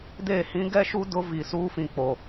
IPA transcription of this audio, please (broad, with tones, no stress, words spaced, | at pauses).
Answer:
de˦˨ hĩ˦ɡɛ˦ʃu˦ dʊ˦vi˨ suː˦fĩ˨k͡po˨